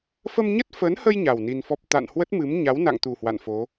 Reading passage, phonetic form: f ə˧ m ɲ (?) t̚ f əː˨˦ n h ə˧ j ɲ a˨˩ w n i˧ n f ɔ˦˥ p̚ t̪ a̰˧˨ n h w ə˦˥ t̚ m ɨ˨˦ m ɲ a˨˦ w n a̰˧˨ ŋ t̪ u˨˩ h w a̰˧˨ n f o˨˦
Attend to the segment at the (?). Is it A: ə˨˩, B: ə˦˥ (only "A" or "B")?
B